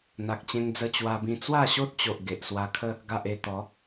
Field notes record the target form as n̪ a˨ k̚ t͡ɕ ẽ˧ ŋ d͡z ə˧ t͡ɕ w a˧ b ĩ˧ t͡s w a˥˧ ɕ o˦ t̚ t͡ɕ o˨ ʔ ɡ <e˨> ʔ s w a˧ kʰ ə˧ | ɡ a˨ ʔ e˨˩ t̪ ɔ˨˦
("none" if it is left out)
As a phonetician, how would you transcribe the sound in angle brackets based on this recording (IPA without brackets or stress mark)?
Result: e˨